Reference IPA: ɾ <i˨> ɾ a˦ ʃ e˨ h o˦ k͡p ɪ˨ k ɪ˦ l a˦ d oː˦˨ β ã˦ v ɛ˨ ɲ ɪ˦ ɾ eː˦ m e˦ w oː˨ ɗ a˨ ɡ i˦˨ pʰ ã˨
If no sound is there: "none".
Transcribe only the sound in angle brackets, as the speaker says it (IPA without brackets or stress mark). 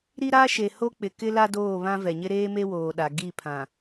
i˦